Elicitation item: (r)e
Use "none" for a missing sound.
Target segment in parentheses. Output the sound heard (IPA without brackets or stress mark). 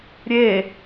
ɾʲ